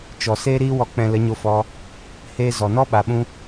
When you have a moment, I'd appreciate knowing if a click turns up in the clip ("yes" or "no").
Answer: no